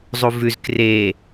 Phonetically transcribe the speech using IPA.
zˤ u v ʉ z k r e

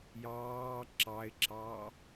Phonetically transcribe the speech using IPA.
j ɑː ǁ ɑ ɪ̯ ǁ ɑ

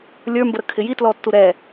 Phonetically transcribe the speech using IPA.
lʲ ə˞ m b ə ɾ ə kʰ ɪ j i t l ɔ tː u ɾ ɛ

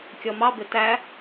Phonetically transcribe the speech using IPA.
kʲ ɔ m ɑ b ɪ t æ

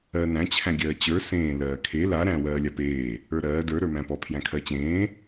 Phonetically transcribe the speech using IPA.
ɜ n æ̃ t͡ɕʰ æ̃ ɡʲ ɜː t͡ɕ ə˞ s ẽː l ɜː kʰ e l a ɾ æ̃ w ɜː lʲ a p eː | ə˞ ɾ ɜː d ə˞ ɾ ə˞ m æ̃ p ɔ pʰ j æ̃ kʰ ɜ t͡ɕ ẽː

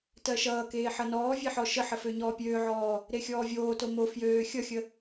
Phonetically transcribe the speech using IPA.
t ɜ ʃ ʌː k eː ħ ʌ n ɔː vʲ e ħ ɔ ʃ ə ħ ə f ø ɲ ɔː pʲ øː ʕ ɔː | ɾ e xʲ ɔː vʲ oː t o m o f j øː xʲ ʌ xʲ ə

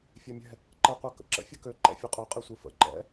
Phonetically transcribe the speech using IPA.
fʲ ɛ mʲ ɛ̤ | ǃ ɛ qʷ ɛ k ə̰ ǁ ə̰ fʲ ɯ k ø ǃ ɛ̰ fʲ ɨ qʼ ø qʼ e sʷ ɨ f ə̰ ǃ ɛ̰

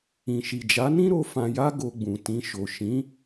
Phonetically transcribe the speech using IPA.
ĩ˨ ʃ i˨ d͡ʒ a˨˦ n ĩ˦ ɾ o˧ f ã˧ j a˦ ɡ o˧ ɡ͡b ũ˨ t ĩ˧ ʃ o˨ ʃ ĩ˨˦

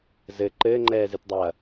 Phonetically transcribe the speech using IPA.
z ɘ ǃ ɘː ŋ͡ǃ ɛː z ɨ t dˤ ɐː

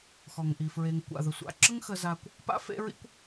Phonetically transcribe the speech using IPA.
x ɔ˩ ŋ ʔ i˩ f ɹ e˨ ŋ kʷ a̰˩ ð ə˩ sʷ a̰˨ ǁ ə˥ ŋ x ə˦ z a˦ kʷ | p a̰˥ f ḛ˥ ɹ ḭ˥ kʷ

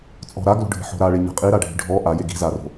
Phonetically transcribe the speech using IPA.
t͡sʼ ɔ̤ ɾ a ɡ l o̤ ɖʱ i̤ ħ o̤ ɾ a ɭ e ɲ a̤ qʼ i ɾ a ɖʱ i̤ ɖʱ ɔ ʔ a j e ɡ i̤ z a r o̤

